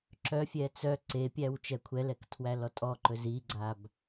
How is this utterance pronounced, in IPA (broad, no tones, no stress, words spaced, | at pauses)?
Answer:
ǁœfʲɛ t͡sœ ǀepʲæw t͡ʃɛkʷʰɛlɛk tʰwælɔtʼɔǃɵ ziɡ͡ǀab